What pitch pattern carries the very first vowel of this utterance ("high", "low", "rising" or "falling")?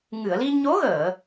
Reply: low